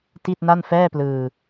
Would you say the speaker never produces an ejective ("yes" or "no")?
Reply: yes